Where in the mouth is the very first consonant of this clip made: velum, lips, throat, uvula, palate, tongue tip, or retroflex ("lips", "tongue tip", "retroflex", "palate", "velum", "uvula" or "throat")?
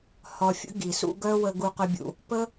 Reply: throat